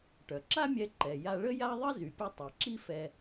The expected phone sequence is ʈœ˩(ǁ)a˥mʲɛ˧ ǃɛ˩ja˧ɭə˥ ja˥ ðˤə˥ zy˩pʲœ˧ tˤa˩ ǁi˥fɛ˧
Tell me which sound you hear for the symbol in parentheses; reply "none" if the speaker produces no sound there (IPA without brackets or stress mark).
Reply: ǁ